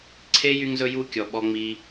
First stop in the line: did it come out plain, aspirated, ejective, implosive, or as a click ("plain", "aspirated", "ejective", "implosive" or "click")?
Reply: click